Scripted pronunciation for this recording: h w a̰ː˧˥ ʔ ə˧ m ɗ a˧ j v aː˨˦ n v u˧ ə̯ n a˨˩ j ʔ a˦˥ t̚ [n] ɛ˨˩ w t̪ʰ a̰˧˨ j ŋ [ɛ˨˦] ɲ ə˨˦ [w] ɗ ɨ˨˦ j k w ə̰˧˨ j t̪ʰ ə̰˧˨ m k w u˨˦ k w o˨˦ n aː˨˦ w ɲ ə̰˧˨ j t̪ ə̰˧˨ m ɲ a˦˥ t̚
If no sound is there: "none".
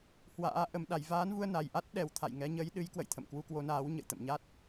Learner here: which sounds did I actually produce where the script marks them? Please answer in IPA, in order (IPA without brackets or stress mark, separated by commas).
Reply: ɗ, ɛ˨˦, j